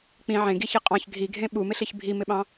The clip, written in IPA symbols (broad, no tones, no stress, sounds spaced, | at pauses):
k͡p ĩ ʕ ẽ ɡ i ç e qʼ ɑ̃ ç ɡʱ i ɡʱ ẽ ɓ u m ɪ ɬ i ç bʱ i m ɪ ɓ ɑ̃